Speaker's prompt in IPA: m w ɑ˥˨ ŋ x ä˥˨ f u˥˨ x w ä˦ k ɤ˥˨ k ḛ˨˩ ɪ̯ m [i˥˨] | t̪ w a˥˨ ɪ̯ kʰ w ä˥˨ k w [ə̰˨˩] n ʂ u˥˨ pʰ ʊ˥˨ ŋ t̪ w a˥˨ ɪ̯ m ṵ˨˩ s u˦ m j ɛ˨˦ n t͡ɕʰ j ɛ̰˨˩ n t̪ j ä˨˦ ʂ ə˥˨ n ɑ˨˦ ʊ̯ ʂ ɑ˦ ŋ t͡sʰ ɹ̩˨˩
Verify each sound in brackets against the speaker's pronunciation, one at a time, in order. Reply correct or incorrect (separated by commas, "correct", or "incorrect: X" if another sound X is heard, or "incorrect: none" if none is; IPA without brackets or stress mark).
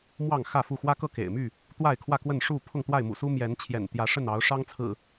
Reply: incorrect: y˥˨, incorrect: ə˥˨